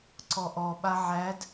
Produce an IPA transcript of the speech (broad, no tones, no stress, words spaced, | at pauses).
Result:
ǀɔʔɔ ɓaʕæd